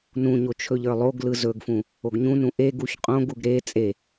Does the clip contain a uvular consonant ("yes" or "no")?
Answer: yes